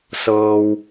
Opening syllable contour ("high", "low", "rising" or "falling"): low